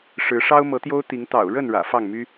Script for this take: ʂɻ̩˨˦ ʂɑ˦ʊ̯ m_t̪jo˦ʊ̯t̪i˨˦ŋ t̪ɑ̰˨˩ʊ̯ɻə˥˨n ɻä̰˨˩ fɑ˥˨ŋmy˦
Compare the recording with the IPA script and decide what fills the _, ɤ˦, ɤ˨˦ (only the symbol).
ɤ˨˦